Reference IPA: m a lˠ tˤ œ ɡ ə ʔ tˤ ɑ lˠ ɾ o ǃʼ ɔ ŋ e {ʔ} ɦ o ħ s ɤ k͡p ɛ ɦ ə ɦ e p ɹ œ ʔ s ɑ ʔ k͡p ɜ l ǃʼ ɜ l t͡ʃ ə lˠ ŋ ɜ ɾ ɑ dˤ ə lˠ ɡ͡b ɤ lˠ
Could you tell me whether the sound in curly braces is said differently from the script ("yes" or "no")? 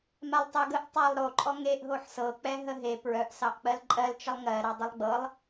no